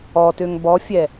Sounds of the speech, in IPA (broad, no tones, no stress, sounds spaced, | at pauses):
ɔ t ø ŋ b ɔ fʲ ɛ